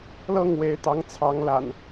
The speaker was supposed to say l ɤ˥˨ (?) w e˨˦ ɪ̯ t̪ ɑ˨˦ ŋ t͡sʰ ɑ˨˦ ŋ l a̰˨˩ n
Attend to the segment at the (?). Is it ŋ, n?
ŋ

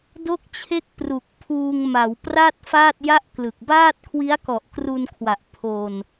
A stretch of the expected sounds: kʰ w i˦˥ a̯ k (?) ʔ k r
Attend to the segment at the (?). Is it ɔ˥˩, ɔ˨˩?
ɔ˨˩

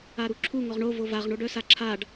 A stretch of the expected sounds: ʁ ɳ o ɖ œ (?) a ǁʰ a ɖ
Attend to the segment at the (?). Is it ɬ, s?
s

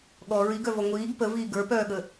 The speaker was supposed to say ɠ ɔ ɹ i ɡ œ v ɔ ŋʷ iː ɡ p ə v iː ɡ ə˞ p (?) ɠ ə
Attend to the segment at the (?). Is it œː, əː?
œː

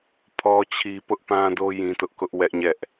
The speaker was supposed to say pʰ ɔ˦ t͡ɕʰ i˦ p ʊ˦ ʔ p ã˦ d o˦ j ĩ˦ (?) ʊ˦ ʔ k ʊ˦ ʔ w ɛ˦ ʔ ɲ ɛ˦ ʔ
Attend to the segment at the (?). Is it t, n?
t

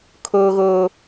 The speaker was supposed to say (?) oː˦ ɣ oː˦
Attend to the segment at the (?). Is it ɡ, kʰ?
kʰ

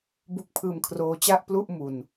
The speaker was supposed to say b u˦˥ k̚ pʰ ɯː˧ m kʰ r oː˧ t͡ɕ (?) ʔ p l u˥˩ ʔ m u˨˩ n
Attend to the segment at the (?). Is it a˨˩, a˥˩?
a˥˩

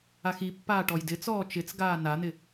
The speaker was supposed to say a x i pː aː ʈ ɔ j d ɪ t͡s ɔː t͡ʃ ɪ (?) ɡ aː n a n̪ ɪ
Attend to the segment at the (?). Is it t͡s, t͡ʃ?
t͡s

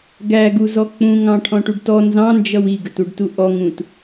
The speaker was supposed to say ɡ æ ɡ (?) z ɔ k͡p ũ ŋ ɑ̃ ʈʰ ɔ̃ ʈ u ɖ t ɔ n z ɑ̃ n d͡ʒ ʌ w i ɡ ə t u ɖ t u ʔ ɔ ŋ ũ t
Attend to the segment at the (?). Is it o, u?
u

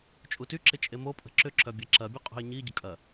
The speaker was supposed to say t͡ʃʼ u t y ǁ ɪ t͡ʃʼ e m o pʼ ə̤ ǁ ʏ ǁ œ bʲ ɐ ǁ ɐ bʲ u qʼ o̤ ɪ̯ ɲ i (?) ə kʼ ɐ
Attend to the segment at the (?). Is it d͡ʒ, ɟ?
ɟ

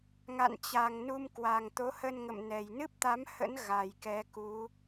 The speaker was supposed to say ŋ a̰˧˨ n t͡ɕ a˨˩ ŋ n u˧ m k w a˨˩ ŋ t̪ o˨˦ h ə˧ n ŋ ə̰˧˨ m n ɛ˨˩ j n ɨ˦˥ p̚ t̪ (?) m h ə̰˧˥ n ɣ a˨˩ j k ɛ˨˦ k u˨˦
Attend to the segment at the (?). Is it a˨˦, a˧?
a˨˦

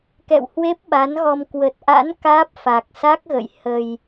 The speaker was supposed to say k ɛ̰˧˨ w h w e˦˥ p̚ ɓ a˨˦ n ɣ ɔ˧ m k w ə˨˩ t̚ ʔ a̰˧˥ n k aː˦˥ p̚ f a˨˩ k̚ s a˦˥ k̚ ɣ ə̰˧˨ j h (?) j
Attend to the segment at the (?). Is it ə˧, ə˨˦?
ə˧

